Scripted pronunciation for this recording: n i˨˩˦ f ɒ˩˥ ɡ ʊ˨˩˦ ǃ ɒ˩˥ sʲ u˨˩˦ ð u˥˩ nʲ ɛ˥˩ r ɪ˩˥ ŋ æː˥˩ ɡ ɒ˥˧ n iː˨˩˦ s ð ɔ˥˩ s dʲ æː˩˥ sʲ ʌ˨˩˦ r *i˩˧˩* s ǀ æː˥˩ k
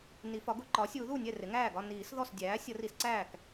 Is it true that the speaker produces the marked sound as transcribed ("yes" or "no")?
no